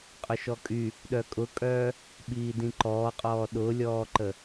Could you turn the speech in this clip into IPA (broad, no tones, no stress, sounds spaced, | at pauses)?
qʼ ʊ ʃ ɔ kʼ y | ɗ œ kʼ ʊ kʼ œː | ɓ iː d ĩ ǃ ɔː qʼ ɔː ɗ ʊ lʲ ɔː ǃ ə